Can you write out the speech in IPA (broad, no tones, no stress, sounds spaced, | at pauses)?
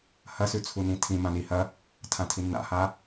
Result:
h ɐ s ʉ t͡sʰ u n ĩ tʰ ĩ m ã n i h ɐ | tʰ ã tʰ i nː a̰ h a